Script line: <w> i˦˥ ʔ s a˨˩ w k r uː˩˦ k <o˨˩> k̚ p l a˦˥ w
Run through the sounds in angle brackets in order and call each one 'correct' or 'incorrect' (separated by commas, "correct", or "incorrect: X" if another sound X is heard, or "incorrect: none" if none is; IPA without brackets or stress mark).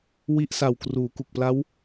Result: correct, incorrect: u˨˩